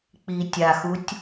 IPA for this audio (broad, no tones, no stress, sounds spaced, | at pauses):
k͡p i tʲ a x u tʲ